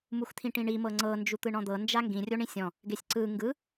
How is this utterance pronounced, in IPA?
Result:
m u x t̪ʰ ĩ ʈ ĩ ɳ i m ɤ ŋ͡ǀ ɤ n d͡ʒ u t̪ ɯ ɳ ɔ̃ d̪ ɤ n d͡ʒ a ŋ ɡ ĩ rʲ o ɳ ĩ sʲ ɔ̃ | ɡ e sʲ ǀ ɯ ŋ ɡ ɯ

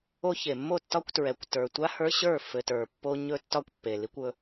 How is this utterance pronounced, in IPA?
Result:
o˦ ç e˨ mː o˦˨ tː ɒ˦ kʷ t ɹ ɛ˨ kʷ t ə˞˨ tʷ a˦ h ə˞˦ ɕ ə˞˦˨ f ɘ˨ t ə˞˨ pː o˦ ɲ ɵ˦ tː ɒ˦ kʷ pː e˨ l i˦ kʷ ɵ˦

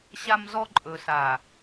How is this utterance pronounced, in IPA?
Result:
ɕ a˦ m z ɔ˦ ǃʼ ɵ˨ s a˨

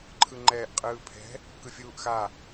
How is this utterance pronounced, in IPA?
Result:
ǃʰ ɯ ŋ͡ǃ ɛː ʔ qʼ ɯː pʰ ɛ̤ | k ɯ fʲ uː ʔ x a

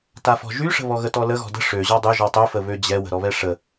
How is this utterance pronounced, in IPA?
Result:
t a f ɔ̤ ʒ y ʂ ə̤ β ɔ ɣ ə t ɔ l ə ɣ ɔ̤ d ə̤ ʂ ø ʑ ɔ dˤ ø ʒ ɔ tˤ ø f ə β ø d͡ʑ ɛ w ə̤ ɾ ɔ β ɛ ʂ ə

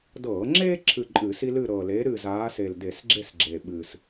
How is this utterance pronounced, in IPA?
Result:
d ɤː˧˩˧ ŋ͡ǁ eː˥ ǁʰ ɨ˦˨ ǃʼ ɨː˧˩˧ s i˥ l ɨ˦˨ ɾ ɤː˨˩ l eː˨˥ ɾ ɨː˦˨ z aː˨˥ s eː˨˩ l d e˧˩˧ s ɡ͡ǁ e˦˨ s ɡ͡ǁ e˨˩ ɓ ɨː˨˩ s

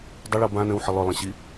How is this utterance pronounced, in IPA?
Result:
dˤ ʏ ɭ ɤ b ã n ə̃ w ħ ə lˠ ʏ lˠ ə̃ ɕ i

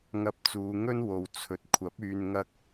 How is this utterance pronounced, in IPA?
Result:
ŋ ɐ˧ p̚ t͡s uː˨˧ ŋ ɵ˥ n w o˨˧ w t͡sʰ ɵ˨ t̚ kʷʰ ɐ˨˥ p̚ yː˧ n ŋ ɐ˥ k̚

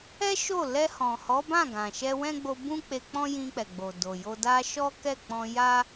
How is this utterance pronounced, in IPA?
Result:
ɛ˦ ʃ o˦˨ l ɛ˧ h ɔ̃˨ h ɔ˨˦ b ã˦˨ ɡ ã˨ ʃ ɛ˧ w ɛ̃˦ ɡ͡b o˧ b ũ˦ k͡p e˧ k͡p ɔ̃˦ j ĩ˧ k͡p ɛ˨ ɡ͡b o˨ d o˨ j o˧ d a˧ ʃ ɔ˦ k ɛ˦˨ k͡p ɔ̃˧ j a˦

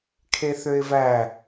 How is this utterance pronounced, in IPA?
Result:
kʰ e θ ø ɪ̯ v æ

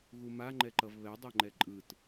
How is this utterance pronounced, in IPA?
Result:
ɣ u m a ŋ͡ǃ ɛ ǃ ʌ v β ɛ dˤ ɛ ŋ͡ǃ ɛ ǃʼ ɯ t

